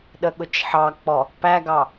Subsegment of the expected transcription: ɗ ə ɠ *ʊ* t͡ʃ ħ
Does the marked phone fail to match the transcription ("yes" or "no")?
no